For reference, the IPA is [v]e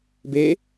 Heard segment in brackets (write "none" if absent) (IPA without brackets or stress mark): b